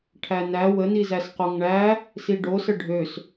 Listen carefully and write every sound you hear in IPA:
ʈʰ æ n æ w ə n i z æ s q o ŋ ɳ æ | s i ɖ o s ə ɖʱ ø s

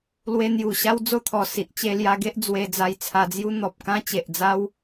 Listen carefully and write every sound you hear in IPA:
l w e˧ n̪ j u˨˩ ɕ a˦ w d͡z o˦ t̪ʰ ɔ˨˩ s i˨ ʔ t͡ɕ e˧ l j a˧ ɡ e˦ ʔ d͡z w e˧ d͡z a˧ j t͡sʰ a˧ d͡z j u˦ n̪ ɔ˨ p̚ k ã˦ t͡ɕ e˨ ʔ d͡z a˦ w

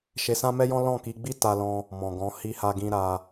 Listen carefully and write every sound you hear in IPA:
ʃ e˧ s ã˦ m ɛ˦ j ɔ̃˦ l ɔ̃˦˨ k i˧ ɡ͡b i˦ t a˦ l ɔ̃˦ | m ɔ̃˨ ɡ ɔ̃˨˦ h i˦ h a˦ ɡ ĩ˦ ɾ a˧

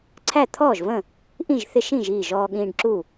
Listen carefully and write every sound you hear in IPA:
ǀʰ æ˥˨ t̪ʰ ɔː˥˨ ʒ v ə̃˥˨ | ʔ ĩ˥˨ ʒ θ ɪ˦ ʃ ĩ˥˨ ʒ iː˥˨ ʒ ɔː˦ ɠ ĩː˦ ɖ ǁ u˥˨

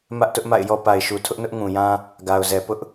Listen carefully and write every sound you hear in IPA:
m ä˦ ʔ t ʊ˦ ʔ m a̰˦˨ ɪ̯ j ɔ˦ p a˨ ɪ̯ ʃ u˨ tʰ ʊ˦ ʔ n ʊ˦ ʔ ŋ ũ˨ j ã˦ | ɡ a˨ ʊ̯ z ɛ˨ p ʊ˦ ʔ

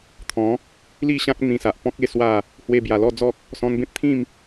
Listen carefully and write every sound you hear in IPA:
t̪ʰ ɔ̃˨˦ | l i˥˧ ɕ ã˦ k̚ n̪ ĩ˧ s a˨ ʔ p ɔ̃˦ k̚ e˧ s w a˥˧ | h w e˧ b j a˨˩ l ɔ˥˧ d͡z ɔ˦ k̚ | s ɔ̃˧ n b ẽ˦ p̚ t̪ʰ ĩ˥˧ m

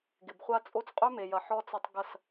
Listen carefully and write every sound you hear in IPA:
ɡ ɪ˨ b χʷ a˦ t͡sʼ o˦ t͡s qʼ ø˦ m e˨ j ɐ˨˦ ħ ɔ˦ t͡s ɐ˦ tˤ ɡ ɐ˦˨ s

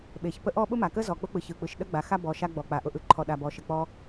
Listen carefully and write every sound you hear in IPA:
ɓ e˩ ç p ə˥ ʔ ɔ˥ ɓ ʊ˥ m a˩ k ə˥ z ɔ˩ k͡p ʊ˥ k͡p ɯ˩ ç ɯ˩ k͡p ɯ˩ ʃ ɗ ə˥ ɡ͡b a˩ x a˥ b ɔ˩ ʃ a˥ ɡ͡b ɔ˩ k͡p a˩ ʔ ʊ˩ ʔ ɯ˩ ǃʰ ɔ˩ ɗ a˩ b ɔ˩ ʃ ə˩ k͡p ɔ˥

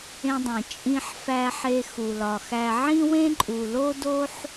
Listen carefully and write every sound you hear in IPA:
ẽ˧ dˤ ẽ˩ t͡ʃʼ ĩ˧ ħ f æ˧ ħ e˧ x u˩ l ɒ˩ x æ˧ ʕ ĩ˥ w ẽ˥ ǃʼ u˩ l o˥ d o˥ ħ

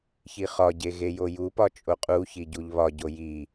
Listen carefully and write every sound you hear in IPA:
ç i χ ɒ ɟ e ɣ e j o j u p ɒ t͡ʃʼ o qʼ u ç i ɟ u ʎ β ɒ ɟ o j i

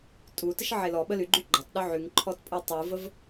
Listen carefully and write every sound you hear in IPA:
tʼ u t ə ʃ ʕ e l ɔ ɓ ə l y ɡ͡ǃ y ɡ͡ǃ ɒ tˤ ɗ ɵ ʕ y ŋ ǃʰ ɔ t pʼ ɯ tˤ ɯ v ə v

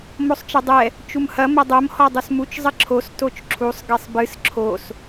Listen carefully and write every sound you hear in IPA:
m o sˤ t͡ʃ ɐ dˤ ɛ | t͡ʃ u m h ɐ m ɐ dˤ o m h ɔ dˤ u s m u t͡ʃ zˤ ɘ ǁʰ o s t o t͡ʃ ǁʰ u sˤ ɡ e sˤ b ɨ s ǁʰ o s

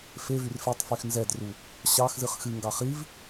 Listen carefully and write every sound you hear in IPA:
f e v y r f e tˤ f y x n z ɛ d r u | ɕ ɑ x z ɨ χ x ɨ ŋ ɡ ɑ χ i v

